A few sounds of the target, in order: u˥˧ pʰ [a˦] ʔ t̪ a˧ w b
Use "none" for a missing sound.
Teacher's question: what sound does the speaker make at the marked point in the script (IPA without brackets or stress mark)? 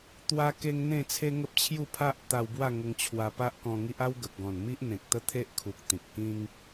a˦